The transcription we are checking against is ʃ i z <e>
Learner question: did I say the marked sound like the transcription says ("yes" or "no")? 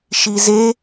yes